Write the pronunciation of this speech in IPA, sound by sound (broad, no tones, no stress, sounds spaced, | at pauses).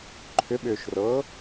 ǃʰ ʏ ɓ ʏː ʃ r ɤː